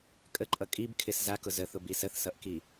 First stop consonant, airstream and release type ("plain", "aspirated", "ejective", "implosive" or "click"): ejective